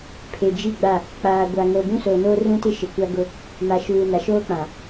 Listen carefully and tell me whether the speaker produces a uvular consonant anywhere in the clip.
no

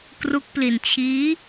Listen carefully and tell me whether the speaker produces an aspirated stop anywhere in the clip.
yes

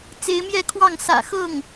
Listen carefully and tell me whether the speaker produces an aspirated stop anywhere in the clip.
yes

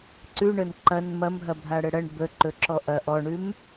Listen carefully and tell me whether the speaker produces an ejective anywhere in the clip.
no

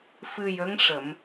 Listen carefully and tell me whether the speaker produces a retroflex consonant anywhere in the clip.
yes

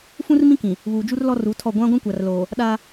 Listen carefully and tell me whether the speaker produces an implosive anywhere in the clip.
yes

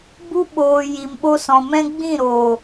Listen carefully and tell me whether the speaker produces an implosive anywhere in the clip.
yes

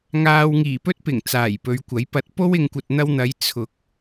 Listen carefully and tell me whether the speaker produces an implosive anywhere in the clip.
no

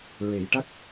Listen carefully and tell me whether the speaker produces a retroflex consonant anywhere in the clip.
yes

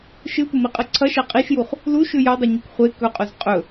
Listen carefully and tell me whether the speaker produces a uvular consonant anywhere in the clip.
yes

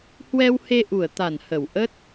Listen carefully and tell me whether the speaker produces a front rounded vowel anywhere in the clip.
no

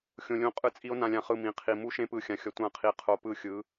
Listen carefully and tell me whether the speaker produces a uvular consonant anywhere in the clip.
yes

